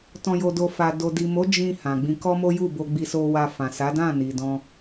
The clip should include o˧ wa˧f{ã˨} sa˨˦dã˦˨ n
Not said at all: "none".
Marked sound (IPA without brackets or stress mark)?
ã˨